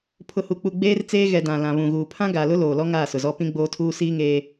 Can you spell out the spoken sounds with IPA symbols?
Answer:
pʰ ʊ˨ h u˨ k͡p u˨ ɡ͡b eː˦ r t͡s eː˦ ɣ ɛ˨ d ã˨ l ã˨ β ũ˨ ɣ uː˨ pʰ ã˦ ɡ a˨ l ʊ˦ l oː˨ l ɔ˦ ŋ aː˦˨ s ʊ˨ z ɔ˦ p ĩ˦ ɡ͡b oː˦ tʰ uː˦ s iː˦ ŋ eː˦

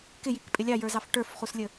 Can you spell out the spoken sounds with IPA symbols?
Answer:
k ɪ j i k pʼ ɪ lʲ ɑ j ə˞ z ɑ f ʈ ə˞ f χ u s lʲ ə

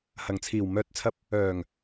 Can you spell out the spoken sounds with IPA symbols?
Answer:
h ɐ˨˩ ŋ t͡sʰ iː˨˩ w m œː˨ t̚ t͡sʰ ɐ˧ p̚ | œː˨˩ ŋ

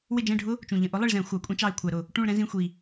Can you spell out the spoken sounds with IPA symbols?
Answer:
w ɪ˦˨ d͡ʒ ɛ̃˦˨ ɖʱ ʊ˦˥ | t͡ʃ ũ˨˩ ʎ ə̃˧˩˧ ʔ ʊ˨˦ lˠ ɪ˦˨ ɭ z ɛ̃˧˩˧ xʷ ɑ˧˩˧ kʷʼ ɛ̃˦˥ t͡ʃ ɑ˦˨ ɪ̯ kʷʰ æ˧˩˧ ɾ ʊ˨˩ | ʈ ũ˦˨ ɭ ɾ ɛ̃˦˥ z ĩ˧˥˧ xʷ i˨˩

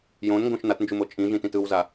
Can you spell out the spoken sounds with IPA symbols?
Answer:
j õ n ŋ ɡ õ ʃ n a t n d͡ʒ u m o t͡ʃʼ ĩ ʒ ĩ t ĩ t ɯ w z a

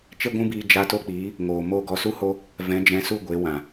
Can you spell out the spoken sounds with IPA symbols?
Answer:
t͡ʃ e˦ ɡʷ ũ˦ b iː˧ d͡ʒ a˧ t o˦ k͡p iː˨˦ | ŋ oː˨ m o˦˨ ɡ ɔ˧ s u˦ h o˦ | v ɛ̃˨˦ d͡ʒ ɛ̃˨˦ s u˦˨ ɡʷ e˨˦ w ã˨

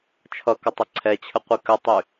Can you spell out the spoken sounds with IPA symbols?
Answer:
t͡ʃʰ ʌ k ʌ tˤ ɘ ǀʰ ɛ t͡ɕʰ ə qʷ i k ə tˤ y

